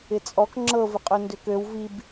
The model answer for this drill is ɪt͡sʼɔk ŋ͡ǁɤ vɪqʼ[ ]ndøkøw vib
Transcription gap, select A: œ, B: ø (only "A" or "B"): B